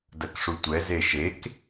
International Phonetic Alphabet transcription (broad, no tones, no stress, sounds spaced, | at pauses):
d ɐ k ʂ u tʷ ɛ z e ʃ e k